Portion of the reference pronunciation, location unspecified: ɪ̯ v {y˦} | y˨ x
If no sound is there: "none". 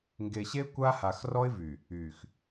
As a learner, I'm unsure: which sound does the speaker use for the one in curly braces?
y˨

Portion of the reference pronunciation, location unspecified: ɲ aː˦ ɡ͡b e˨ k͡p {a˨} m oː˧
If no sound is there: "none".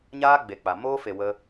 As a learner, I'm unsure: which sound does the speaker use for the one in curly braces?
a˨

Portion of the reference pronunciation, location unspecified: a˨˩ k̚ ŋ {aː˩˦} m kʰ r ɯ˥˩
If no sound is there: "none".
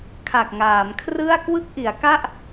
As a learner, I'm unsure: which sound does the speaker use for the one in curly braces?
aː˩˦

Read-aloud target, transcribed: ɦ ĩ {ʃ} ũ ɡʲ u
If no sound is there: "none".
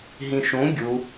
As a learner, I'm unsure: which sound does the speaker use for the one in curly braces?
ʃ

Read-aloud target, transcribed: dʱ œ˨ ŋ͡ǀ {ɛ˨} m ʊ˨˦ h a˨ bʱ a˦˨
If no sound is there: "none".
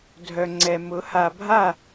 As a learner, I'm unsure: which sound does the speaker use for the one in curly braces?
ɛ˨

